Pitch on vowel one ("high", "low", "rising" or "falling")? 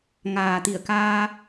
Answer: low